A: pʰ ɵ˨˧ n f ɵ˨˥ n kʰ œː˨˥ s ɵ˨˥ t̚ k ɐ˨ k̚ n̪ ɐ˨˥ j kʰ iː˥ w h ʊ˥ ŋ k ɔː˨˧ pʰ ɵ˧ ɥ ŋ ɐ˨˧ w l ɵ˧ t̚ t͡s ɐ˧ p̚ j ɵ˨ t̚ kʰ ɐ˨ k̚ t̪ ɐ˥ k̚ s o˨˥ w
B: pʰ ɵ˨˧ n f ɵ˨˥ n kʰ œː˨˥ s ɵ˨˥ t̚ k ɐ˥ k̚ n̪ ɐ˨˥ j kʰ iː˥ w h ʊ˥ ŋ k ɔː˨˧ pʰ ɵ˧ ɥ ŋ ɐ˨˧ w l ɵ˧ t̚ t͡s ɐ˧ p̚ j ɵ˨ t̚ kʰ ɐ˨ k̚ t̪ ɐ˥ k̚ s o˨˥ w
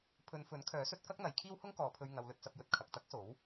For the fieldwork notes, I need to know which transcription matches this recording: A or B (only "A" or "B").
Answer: B